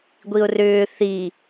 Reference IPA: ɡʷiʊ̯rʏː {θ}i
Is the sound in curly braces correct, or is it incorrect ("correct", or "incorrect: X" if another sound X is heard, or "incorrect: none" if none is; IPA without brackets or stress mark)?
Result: correct